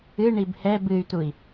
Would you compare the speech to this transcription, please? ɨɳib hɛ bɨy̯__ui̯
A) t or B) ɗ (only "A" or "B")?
A